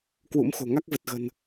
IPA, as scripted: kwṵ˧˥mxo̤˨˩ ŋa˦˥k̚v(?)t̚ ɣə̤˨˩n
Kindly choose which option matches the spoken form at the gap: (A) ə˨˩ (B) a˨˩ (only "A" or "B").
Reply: A